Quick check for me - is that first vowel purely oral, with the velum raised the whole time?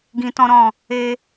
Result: no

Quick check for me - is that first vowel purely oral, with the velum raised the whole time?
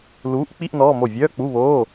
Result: yes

